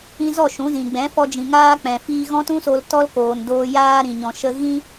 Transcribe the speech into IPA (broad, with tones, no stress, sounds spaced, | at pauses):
ĩ˧ z ɔ˦˨ ʃ ũ˨˦ z ĩ˨ ɡ͡b ɛ̃˨˦ f ɔ˧ d͡ʒ ĩ˨ ŋ aː˦ k͡p ɛ̃˨ f iː˧ ɣ ɔ̃˦ t ũ˦ s o˧ l t ɔ˦ l k oː˨ n d oː˧ j aː˧ ɾ ĩ˨ ɲ ɔ̃˨ ʃ ə˧ ɣ ĩ˦